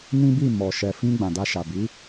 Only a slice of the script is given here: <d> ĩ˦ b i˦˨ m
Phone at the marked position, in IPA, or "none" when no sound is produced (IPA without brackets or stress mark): n